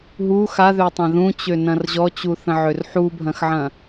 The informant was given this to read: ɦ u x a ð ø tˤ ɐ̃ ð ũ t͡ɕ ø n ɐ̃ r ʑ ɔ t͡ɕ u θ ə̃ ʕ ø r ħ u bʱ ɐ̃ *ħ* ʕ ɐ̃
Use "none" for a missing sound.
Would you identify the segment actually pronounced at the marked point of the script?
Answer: x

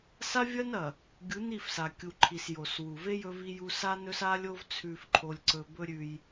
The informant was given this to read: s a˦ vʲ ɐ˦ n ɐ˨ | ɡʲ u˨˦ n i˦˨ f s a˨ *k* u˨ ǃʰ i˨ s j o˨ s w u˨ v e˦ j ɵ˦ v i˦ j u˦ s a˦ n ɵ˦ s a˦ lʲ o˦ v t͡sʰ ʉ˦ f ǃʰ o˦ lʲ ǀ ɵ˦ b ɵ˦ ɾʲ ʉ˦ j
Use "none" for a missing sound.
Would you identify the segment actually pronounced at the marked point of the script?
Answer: kʲ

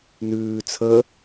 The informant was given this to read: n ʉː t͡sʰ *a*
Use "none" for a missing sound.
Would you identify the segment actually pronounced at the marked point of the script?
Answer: ə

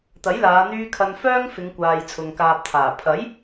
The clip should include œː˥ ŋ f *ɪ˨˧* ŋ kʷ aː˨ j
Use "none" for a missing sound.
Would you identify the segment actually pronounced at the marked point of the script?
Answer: ɪ˨˧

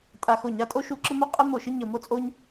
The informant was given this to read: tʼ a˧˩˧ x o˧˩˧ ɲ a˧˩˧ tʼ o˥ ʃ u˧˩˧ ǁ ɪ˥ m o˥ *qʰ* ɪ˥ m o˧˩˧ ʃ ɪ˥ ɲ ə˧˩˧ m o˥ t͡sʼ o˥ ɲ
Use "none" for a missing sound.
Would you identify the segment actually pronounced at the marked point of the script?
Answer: qʼ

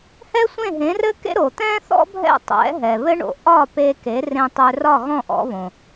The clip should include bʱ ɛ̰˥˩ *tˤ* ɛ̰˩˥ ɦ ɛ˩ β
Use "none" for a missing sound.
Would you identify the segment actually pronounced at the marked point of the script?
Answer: tˤ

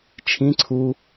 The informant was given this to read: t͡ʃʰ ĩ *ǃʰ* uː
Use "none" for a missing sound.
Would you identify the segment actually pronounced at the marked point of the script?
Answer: ǀʰ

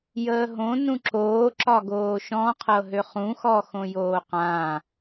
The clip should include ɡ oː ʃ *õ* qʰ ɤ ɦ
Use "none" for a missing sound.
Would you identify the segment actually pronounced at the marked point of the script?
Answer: ɔ̃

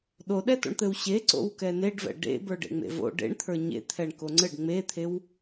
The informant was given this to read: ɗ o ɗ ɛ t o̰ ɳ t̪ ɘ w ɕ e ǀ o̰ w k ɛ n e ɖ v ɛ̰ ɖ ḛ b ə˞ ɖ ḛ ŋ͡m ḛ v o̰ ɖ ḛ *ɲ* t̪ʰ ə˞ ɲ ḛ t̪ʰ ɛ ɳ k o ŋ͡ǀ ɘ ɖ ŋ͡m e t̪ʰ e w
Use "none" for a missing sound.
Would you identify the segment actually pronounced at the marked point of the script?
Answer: ɳ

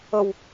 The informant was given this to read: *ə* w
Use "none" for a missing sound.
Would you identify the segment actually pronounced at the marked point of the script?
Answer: ə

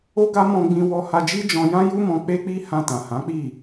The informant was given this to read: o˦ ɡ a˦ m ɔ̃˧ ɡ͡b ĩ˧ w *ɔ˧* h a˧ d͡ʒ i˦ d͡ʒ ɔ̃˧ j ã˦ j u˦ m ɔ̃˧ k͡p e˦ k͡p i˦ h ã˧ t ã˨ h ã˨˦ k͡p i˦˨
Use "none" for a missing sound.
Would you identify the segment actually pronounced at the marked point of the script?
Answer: ɔ˧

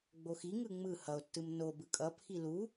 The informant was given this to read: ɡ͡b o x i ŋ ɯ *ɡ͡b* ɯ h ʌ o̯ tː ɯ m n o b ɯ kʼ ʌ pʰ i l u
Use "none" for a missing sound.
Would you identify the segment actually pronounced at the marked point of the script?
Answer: ŋ͡m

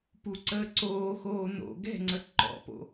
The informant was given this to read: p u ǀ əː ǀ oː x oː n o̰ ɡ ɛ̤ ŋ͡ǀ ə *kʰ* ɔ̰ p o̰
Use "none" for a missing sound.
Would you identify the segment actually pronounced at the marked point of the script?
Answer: ǃ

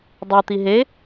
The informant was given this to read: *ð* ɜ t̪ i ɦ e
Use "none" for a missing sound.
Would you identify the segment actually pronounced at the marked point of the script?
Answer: dˤ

